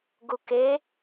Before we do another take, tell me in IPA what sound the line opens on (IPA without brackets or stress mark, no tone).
ɡ